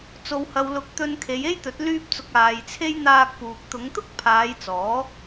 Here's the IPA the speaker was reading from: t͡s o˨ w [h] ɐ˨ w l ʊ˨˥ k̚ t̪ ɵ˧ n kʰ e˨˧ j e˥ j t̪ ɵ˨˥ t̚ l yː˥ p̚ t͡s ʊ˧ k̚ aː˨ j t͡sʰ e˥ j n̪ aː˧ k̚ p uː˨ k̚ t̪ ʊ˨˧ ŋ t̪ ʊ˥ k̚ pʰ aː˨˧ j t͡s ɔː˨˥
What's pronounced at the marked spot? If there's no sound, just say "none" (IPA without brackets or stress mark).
h